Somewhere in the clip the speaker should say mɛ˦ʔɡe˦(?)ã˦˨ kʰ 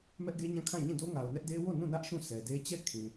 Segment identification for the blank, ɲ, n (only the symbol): ɲ